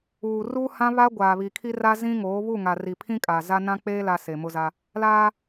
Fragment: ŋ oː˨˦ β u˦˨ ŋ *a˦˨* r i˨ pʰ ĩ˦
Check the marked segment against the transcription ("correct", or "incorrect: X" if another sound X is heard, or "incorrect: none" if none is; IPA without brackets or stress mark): incorrect: a˨